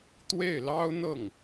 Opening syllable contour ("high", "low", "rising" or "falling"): falling